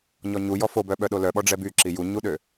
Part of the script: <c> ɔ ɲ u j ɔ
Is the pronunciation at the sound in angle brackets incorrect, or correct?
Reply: incorrect